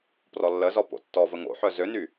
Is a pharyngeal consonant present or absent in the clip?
present